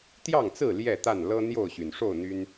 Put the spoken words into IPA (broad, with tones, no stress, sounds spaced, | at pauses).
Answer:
t̪ j ɑ˥˨ ŋ t͡s ɹ̩˥˨ l j ɛ˥˨ t̪ a˥˨ n l ɤ˦ n̪ j o˥˨ ʊ̯ ɕ y˩ n ʂ o˥˨ ʊ̯ n̪ y˦ n